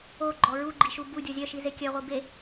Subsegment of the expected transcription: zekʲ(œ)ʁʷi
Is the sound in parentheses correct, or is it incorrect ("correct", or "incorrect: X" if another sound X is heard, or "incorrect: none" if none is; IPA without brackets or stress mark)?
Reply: correct